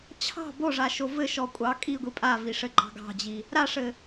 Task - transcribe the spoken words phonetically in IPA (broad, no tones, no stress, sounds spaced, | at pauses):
t͡ɕʰ ɑ̤ b o ʐ a ʃ o v ɘ ʃ ɔ kʷʼ ɑ kʼ i ɡʷ i pʼ a v i ʂ ɘ ɡ͡ǃ ɑ̤ ɡ ɑ̤ d͡ʑ i | ɾ a ʂ ɘ